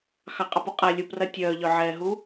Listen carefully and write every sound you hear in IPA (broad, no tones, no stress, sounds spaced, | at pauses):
x ɑ qʼ ɑ p u qʼ a lʲ u p r ɐ tʲ œː ʎ œ ʕ ɛː ɦ u